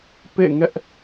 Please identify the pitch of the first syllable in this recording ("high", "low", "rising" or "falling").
falling